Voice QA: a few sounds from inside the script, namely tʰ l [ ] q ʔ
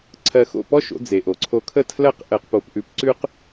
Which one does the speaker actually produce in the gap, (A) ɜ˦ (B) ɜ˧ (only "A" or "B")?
A